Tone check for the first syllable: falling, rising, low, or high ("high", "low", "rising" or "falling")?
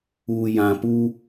low